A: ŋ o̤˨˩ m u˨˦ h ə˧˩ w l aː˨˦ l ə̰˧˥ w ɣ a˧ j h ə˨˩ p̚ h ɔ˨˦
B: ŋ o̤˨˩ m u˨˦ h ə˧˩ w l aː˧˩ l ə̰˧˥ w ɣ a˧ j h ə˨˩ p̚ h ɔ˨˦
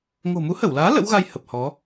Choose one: A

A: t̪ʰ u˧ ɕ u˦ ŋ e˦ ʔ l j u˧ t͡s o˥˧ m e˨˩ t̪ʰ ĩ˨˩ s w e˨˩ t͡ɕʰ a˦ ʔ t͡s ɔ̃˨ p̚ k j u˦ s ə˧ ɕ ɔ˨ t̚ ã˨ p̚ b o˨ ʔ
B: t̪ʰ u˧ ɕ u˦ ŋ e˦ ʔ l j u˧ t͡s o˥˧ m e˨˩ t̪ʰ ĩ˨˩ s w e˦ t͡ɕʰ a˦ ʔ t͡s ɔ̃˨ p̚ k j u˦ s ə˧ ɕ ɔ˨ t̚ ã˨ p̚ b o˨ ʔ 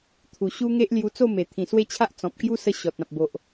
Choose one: B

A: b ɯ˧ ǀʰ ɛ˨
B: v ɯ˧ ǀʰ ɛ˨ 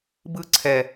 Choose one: A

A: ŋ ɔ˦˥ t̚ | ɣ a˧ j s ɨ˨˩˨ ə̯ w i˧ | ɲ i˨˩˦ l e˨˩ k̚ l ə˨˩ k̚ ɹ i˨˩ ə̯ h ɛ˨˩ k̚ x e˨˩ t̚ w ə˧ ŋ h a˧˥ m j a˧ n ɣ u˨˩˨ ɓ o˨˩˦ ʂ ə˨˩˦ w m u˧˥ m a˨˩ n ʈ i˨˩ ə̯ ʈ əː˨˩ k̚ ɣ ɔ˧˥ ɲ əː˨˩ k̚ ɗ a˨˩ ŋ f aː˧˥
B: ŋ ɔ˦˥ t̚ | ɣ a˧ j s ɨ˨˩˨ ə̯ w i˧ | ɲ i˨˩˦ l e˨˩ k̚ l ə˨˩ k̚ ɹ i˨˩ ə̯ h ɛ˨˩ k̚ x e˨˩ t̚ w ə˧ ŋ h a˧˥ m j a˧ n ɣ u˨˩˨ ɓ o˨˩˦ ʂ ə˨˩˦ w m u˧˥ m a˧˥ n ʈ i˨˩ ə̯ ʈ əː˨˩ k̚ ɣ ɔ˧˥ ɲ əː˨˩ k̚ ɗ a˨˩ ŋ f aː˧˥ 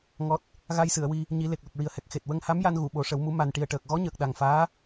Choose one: A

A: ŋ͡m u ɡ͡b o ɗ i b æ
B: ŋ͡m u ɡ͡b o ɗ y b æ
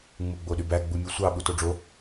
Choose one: B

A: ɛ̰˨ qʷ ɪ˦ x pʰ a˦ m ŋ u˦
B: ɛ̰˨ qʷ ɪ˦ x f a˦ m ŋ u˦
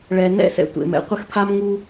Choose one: A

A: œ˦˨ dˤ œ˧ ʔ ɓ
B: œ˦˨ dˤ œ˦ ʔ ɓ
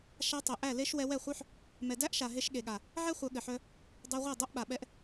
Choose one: A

